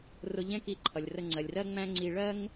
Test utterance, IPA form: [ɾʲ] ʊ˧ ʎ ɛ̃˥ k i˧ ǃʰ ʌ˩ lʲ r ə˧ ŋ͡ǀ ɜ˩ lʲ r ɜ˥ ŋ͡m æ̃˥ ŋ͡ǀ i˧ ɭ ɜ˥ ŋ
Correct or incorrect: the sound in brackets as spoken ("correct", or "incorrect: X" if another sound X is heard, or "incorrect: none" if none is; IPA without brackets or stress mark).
incorrect: r